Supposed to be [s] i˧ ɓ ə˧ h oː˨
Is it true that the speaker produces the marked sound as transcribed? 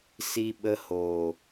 yes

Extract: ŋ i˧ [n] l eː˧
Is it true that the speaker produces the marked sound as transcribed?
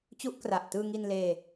yes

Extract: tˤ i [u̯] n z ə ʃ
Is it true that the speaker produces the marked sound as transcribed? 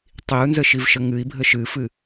yes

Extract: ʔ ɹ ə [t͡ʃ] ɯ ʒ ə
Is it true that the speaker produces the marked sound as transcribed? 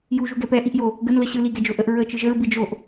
yes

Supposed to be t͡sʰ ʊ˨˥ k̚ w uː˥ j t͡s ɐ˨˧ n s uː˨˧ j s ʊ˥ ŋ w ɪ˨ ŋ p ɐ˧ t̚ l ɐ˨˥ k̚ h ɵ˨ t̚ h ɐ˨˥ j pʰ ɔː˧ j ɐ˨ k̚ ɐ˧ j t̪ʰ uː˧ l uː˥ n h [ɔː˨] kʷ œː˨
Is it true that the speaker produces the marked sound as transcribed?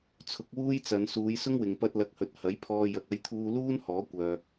no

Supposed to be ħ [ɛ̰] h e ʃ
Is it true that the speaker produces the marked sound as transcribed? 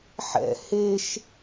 yes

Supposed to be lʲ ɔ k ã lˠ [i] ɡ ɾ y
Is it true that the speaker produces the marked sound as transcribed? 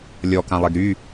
no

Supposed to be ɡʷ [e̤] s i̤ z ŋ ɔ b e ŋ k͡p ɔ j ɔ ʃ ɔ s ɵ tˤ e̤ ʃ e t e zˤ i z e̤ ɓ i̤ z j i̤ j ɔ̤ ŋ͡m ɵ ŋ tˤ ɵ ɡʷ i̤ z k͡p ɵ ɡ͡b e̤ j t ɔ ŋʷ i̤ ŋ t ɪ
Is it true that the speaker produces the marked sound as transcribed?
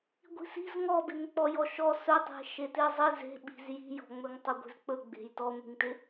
no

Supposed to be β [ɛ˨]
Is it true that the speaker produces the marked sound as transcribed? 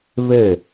no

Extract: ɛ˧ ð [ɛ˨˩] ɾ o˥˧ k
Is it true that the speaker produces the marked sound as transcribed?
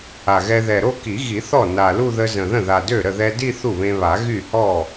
yes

